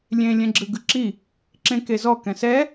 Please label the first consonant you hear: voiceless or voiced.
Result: voiced